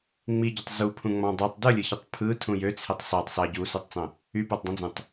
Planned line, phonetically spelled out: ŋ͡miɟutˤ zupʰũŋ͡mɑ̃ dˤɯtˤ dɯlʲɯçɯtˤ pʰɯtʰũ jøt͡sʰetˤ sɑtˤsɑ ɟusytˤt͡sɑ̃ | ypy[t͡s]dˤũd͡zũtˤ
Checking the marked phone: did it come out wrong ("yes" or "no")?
yes